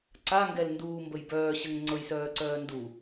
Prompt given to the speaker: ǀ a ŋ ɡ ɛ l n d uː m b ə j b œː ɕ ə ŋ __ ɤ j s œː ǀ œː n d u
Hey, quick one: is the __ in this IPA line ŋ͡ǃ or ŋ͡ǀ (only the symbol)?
ŋ͡ǀ